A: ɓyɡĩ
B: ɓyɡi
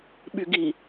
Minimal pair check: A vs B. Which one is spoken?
B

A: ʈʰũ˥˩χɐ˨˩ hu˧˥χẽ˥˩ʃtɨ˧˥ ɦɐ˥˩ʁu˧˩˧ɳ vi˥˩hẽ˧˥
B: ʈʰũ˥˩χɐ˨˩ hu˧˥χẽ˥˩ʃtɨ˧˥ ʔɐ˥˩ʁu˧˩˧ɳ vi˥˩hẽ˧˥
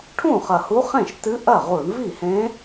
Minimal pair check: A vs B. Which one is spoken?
B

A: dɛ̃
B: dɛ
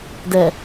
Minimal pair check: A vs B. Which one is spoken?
B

